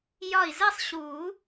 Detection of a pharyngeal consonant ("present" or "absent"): absent